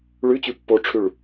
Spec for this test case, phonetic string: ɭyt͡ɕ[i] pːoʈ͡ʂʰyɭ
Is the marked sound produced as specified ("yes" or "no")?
no